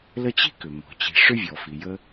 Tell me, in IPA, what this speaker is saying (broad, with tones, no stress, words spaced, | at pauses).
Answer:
lə˦t͡ɕi̤˥kʏ˩ mɔ̤˩t͡ɕi̤˨ ʂʏ˥vʲɔ˩fi˩jə˦